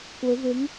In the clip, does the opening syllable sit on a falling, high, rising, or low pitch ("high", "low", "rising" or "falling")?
rising